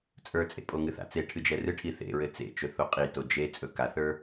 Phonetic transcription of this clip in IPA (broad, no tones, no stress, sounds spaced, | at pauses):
t͡sʼ ə˞ t͡sʼ ḛ pʼ o ŋ ɨ θ a̰ t͡s e ʈʰ ɨ d͡ʒ ɛ r ɨ ʈʰ i θ ḛ ɹ ɘ t͡s ḛ t͡ʃ ɵ θ o qʼ i t o d͡ʒ e t͡sʼ ɵ k a θ ə˞